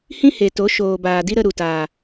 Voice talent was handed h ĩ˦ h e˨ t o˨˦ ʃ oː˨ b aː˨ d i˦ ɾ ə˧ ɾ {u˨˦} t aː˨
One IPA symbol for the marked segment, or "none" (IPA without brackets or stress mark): u˨